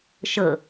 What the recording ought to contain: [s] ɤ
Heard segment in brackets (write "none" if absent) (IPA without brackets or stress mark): ʃ